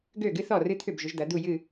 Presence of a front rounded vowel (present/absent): present